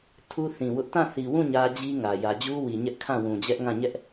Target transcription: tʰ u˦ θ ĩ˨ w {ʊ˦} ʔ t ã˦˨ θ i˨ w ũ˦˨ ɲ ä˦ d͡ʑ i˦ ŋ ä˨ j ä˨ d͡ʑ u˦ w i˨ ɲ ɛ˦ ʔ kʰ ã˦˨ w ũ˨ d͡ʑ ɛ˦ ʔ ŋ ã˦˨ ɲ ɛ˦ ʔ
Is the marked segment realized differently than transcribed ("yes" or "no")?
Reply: no